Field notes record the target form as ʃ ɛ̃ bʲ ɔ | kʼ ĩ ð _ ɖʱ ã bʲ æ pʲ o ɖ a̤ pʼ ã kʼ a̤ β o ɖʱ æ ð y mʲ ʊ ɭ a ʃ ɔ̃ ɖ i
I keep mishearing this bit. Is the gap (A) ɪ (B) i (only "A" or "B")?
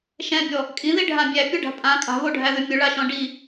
B